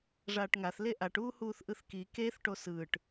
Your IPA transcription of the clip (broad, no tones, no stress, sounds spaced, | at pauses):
ʐ aː ʈ ŋ a θ l e ʔ a ʈ uː h uː θ ʔ ɯ θ k i k e θ ʈ o s ɯː ʈ